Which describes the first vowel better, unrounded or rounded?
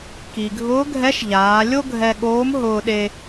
unrounded